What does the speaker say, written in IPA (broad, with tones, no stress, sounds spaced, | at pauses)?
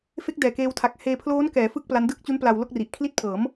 f e˦˥ k̚ d ɛː˨˩ k eː˧ w tʰ a˨˩ k̚ h eː˧ pʰ l oː˦˥ n k ɛː˩˦ f ɯ˥˩ k̚ p l a˦˥ n d ɯː˥˩ k̚ t͡ɕ u˦˥ n p l a˧ w l o˥˩ k̚ r i˨˩ ʔ kʰ l i˥˩ t̚ pʰ ɤː˩˦ m